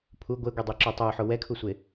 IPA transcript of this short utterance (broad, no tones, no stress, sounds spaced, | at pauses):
pʰ u ɡʷ e ɡʷ i dˤ e ǁ u tˤ o ħ o w ɛ kʰ u sʷ e